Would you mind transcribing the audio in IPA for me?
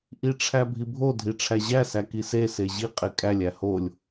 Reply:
ʔ i ʈ͡ʂʰ æ bʱ i bʱ o dʱ i ʈ͡ʂʰ æ ʑ æ s æ k i s e s e ʑ i qʼ e kʼ æ lʲ æ h o lʲ

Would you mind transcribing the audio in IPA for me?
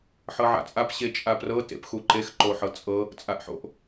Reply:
ħ ɤ ʕ a̰ t͡sʼ a p ɕ e t͡ʃʼ a p r ɤ t ḛ p x u ǃ e x ǃ o ħ ɤ t͡sʼ ɤ | t͡sʼ a ʔ ħ o̰ ʔ

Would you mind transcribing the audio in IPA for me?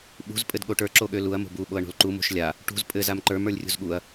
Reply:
ɓ ṳ z pʼ ɘ d ɠ o ʈ ə˞ ǁ o ɠ ø l u ɐ̯ m o̤ b u ɓ o ɐ̯ ɳ o̤ l ǃ u m o̤ ʃ lʲ a | ʈ ṳ z pʼ ɘ z a m ǃ ə˞ m ə˞ lʲ rʲ ṳ z ɠ u ɐ̯

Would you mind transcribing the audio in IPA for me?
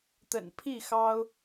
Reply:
t̪ ə̰˨˩ n pʰ i˥˨ x ɑ˦ ʊ̯

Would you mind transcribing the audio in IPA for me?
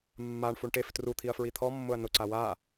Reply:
mː a ɳ f u ɳ ʈ e f t r u t̪ʰ i ɐ̯ f ɹ i t̪ʰ ɔ mː ʊ ɐ̯ n ʊ ǀ a w a

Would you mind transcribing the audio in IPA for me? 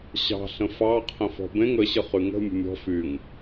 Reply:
ɕ ɑ̤ ɬ ə̃ f ɑ qʰ ə̃ f ɔ̤ b ẽ ŋ ə ɕ ə χ y ŋ ə̤ mʲ ə̤ mʲ ɔ̤ f y ŋ

